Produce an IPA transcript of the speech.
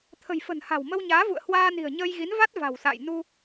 t̪ʰ ə̤˨˩ j f ə̤˨˩ n h a̤˨˩ w m ə˧ w ɲ aː˨˦ v ṵ˧˨ ə̯ h w aː˧ n i̤˨˩ ə̯ ɲ əː˧ j ɣ i˨˦ n v a˦˥ t̚ v a̤˨˩ w s a̰ː˧˨ j n u˧

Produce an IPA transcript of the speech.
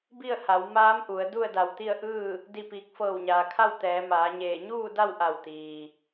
b i˥˨ ə̯ h a˩˧ w m aː˧˥ m ʔ u˩˧ ə̯ d u˥˨ ə̯ d a˧˩ w t̪ i˥˨ ə̯ ʔ ɯː˥˨ | d i˥˨ p iː˧ k̚ f ɤː˧˩ w ɲ aː˩ kʰ a˥˨ w t̪ ɛː˩˧ m aː˩˧ ɲ eː˧˩ ɲ uː˥˨ d a˥˨ w ʔ a˧˩ w t̪ iː˩

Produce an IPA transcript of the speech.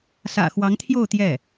s ä̰˨˩ x w ɑ˧˥ ŋ t̪ʰ j o˥˧ ʊ̯ t̪ j ɛ˥˩

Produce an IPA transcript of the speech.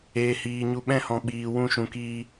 eː˧ h iː˧ ɲ u˧ ɓ ɛ̃˦ h ɔ̃˧ ɓ iː˧ w ũ˦ ʃ ũ˧ k iː˦

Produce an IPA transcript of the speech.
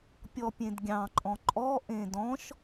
pʲ ɔ pʲ ẽ d ɡʲ ɑ̃ ǃʼ ɔ̃ ǃʼ ɔ ʔ ẽ d ɔ̃ ʃ

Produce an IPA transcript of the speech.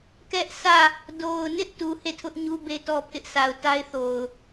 k ɛ˦ ʔ s ä˦˨ | d o˨ ʊ̯ n ɪ˦ ʔ t u˨ h e˦˨ tʰ ʊ˦ ʔ ɲ u˦ b e˦ t ɔ˦ pʰ ɪ˦ ʔ s a˨ ʊ̯ t a˦ ɪ̯ θ o˨ ʊ̯

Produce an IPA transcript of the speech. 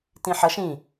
t ĩ ħ ʌ ʃ ĩ

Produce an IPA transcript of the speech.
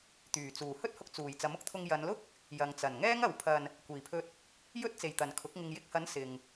t̪ yː˨˩ t͡s uː˨˩ h ɵ˥ t̚ h ʊ˧ k̚ t͡s uː˨˩ j t͡s ɐ˨˥ m ʊ˧ k̚ t̪ʰ ʊ˧ ŋ j ɐ˨˧ n l ʊ˥ k̚ | j ɐ˨ ŋ t͡s ɐ˨˩ n ŋ ɛː˥ ŋ ɐ˨˧ w pʰ ɐ˧ n | kʷ iː˨˩ pʰ ɵ˧ t̚ | j ɵ˥ t̚ t͡s e˨ j t̪ ɐ˨ n kʰ ʊ˨˥ k̚ ŋ ɪ˨ ŋ j ɪ˧ k̚ h ɐ˨˥ n s ɪ˨ ŋ

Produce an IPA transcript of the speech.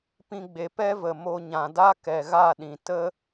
p ĩ˧ ɡ͡b e˨ p ɛ˦ v ə˨ m o˧ ɲ ã˨ d a˦ k ɛ˨ ɣ a˦˨ ɗ ĩ˨ t ə˦

